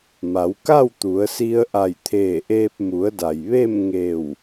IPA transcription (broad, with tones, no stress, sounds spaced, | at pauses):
m a˩˧ w k a˥˨ w t̪ u˩˧ ə̯ s i˧ ə̯ ʔ a˧˩ j t̪ʰ eː˧˩ ʔ eː˧ p̚ m u˩˧ ə̯ d a˩ j ʋ e˥˨ m ŋ e˧˩ w